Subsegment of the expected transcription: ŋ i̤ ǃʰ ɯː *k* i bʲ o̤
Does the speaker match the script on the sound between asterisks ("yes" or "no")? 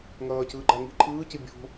no